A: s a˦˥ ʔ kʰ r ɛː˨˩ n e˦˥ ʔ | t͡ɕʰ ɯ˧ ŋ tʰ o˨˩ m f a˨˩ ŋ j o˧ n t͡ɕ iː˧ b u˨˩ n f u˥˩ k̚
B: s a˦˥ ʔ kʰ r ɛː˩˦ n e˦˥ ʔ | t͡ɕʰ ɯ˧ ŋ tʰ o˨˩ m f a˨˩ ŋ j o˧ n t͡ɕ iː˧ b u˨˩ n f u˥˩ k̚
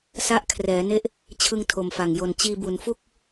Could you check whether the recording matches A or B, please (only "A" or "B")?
B